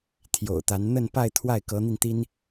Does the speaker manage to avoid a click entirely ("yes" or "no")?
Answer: yes